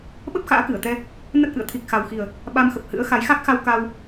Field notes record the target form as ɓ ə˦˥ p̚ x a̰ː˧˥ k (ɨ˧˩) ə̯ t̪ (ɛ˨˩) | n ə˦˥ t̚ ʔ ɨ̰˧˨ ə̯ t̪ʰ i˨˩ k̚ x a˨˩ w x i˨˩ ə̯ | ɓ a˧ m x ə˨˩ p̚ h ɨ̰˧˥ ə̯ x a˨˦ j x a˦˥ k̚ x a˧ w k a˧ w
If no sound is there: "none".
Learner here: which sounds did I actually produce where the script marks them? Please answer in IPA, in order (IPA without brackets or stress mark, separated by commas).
ɨ˧˩, ɛ˧